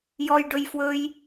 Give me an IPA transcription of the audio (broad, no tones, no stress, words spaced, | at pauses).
jɔjɖɵj fwɵj